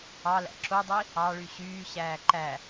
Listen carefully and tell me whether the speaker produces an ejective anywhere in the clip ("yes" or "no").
no